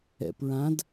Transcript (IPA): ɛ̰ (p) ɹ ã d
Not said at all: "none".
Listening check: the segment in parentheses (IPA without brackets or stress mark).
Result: p